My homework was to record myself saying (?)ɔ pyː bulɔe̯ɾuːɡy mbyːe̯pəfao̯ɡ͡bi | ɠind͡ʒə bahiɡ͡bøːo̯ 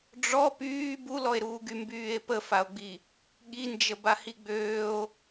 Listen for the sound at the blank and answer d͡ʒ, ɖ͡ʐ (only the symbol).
ɖ͡ʐ